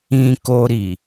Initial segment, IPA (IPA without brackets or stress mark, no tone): ĩ